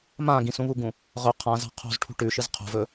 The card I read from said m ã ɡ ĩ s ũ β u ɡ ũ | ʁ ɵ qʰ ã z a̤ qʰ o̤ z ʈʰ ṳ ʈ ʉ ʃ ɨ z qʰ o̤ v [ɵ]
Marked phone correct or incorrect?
correct